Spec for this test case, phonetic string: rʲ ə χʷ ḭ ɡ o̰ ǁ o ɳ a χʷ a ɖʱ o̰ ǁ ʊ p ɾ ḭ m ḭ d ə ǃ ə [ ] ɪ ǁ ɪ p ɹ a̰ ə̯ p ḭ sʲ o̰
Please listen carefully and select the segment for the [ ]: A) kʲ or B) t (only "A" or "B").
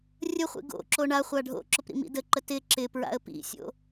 B